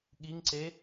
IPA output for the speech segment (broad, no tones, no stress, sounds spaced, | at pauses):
ɠ i ŋ ǀ e